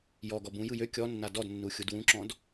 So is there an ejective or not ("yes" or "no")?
no